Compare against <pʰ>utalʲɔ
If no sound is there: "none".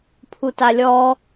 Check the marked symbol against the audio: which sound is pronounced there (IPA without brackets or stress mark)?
pʰ